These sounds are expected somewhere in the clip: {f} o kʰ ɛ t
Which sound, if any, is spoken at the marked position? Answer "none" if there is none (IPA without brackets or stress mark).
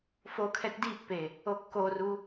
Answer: f